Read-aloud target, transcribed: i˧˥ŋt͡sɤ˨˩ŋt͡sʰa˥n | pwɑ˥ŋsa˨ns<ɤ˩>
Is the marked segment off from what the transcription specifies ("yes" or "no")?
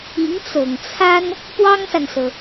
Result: no